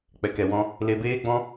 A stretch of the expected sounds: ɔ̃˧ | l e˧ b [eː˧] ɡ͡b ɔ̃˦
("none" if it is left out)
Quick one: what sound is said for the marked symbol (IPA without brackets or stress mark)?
eː˦